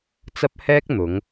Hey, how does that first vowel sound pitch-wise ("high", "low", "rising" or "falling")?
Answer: high